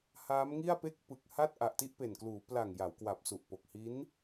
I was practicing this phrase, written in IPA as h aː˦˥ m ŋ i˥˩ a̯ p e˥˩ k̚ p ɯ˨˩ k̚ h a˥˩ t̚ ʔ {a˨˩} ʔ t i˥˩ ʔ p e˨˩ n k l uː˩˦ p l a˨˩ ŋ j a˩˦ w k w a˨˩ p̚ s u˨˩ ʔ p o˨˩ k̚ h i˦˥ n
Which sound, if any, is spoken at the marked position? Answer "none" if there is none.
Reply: a˨˩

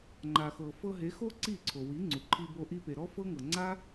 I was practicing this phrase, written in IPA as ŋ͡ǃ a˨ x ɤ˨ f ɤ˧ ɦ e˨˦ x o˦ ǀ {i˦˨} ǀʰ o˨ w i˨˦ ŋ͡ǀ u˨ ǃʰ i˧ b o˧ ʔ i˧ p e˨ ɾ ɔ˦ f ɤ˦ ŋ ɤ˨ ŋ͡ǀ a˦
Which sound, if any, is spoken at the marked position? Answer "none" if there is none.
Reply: i˦˨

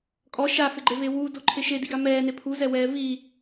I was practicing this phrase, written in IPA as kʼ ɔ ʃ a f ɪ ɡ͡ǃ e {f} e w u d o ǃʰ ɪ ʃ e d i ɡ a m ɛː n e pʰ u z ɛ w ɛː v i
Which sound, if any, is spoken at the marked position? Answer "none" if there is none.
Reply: v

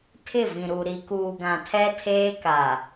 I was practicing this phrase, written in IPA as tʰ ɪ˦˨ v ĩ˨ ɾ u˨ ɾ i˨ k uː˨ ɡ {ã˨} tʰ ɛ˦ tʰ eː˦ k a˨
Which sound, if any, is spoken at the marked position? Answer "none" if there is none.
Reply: ã˨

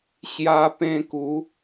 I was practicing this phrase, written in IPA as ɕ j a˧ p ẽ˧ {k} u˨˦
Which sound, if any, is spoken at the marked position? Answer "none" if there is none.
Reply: k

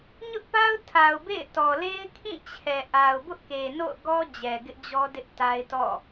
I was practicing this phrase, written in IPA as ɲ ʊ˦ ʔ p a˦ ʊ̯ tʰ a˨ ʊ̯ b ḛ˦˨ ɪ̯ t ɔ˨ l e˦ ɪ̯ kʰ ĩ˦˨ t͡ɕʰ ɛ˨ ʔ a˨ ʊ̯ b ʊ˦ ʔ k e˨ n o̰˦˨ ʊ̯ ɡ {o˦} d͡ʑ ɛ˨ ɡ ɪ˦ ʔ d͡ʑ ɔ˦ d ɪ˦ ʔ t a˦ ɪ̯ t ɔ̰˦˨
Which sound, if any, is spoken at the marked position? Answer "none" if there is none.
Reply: ɔ˦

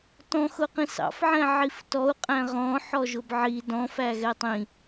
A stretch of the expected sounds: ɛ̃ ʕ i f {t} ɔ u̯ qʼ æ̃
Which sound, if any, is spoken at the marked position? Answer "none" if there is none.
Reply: t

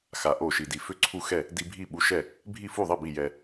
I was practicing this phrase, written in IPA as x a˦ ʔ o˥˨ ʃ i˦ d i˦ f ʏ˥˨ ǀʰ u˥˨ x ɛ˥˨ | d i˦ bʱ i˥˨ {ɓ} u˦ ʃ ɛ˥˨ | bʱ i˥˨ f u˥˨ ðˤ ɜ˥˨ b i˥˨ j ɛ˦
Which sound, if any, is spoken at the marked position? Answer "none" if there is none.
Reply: ɓ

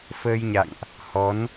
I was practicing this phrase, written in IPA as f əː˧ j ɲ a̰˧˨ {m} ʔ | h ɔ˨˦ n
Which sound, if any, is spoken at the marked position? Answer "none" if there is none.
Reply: ŋ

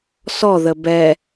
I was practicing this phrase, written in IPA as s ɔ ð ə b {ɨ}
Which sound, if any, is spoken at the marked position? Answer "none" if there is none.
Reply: ɛ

